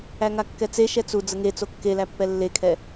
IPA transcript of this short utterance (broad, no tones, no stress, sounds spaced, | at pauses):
æ ŋ a kː ɛ t͡s e ʃ ɛ t͡s u d͡z ə ŋ e t͡s o kː e l æ pː ɛ lː e kʰ ɛ